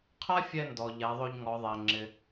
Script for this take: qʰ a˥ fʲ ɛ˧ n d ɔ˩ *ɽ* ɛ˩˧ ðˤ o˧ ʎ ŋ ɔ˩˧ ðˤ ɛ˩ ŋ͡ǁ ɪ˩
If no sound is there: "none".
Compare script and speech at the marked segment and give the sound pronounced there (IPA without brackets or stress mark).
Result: ʎ